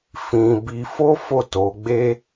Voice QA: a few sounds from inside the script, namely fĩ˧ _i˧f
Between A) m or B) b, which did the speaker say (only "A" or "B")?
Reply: B